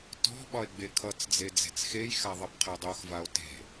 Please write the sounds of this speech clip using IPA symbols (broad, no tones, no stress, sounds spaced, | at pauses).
t ɔ̤ ɓ ɒ e̯ ɡ͡b e kʰ ʌ t͡s d͡z e d͡z e̤ t͡s x e j x a ðˤ ʌ b qʰ e dˤ o x v a o̯ t e̤